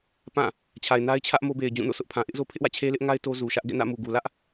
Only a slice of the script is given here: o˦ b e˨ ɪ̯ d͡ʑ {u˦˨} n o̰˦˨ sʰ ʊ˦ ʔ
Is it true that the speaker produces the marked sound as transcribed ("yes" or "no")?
no